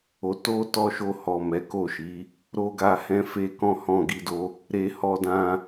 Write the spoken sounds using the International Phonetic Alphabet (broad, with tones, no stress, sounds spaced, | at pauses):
o˨ t o˧ t ɔ˧ ʃ o˧ h ɔ˨ m ɛ˨˦ k o˦˨ ʃ i˨˦ | ɾ o˦ ɡ a˧ h ɛ̃˧ f e˦ k ɔ̃˦ h ɔ̃˦˨ ɡ i˧ d o˧ | ɾ e˧ h ɔ˧ d ã˧